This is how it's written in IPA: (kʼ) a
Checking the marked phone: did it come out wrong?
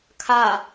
yes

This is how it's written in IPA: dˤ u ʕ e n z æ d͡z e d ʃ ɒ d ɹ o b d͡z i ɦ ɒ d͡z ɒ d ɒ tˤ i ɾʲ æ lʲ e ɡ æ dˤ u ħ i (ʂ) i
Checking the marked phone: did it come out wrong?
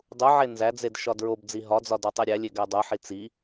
yes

